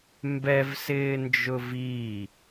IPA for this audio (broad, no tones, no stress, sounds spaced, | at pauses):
m b ɛ v s ɪː n d͡ʒ ʊ v i